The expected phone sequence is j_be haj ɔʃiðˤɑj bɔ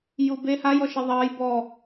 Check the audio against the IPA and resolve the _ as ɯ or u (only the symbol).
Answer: u